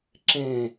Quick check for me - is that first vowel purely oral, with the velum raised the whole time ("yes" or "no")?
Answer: no